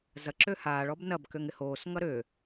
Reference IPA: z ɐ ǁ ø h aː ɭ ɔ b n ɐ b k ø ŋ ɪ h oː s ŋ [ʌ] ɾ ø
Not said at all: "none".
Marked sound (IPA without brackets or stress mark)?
ʌ